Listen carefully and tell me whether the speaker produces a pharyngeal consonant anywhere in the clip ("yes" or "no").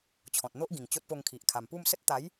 no